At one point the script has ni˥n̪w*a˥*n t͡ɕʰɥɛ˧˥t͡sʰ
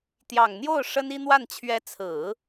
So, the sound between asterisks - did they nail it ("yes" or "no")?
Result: no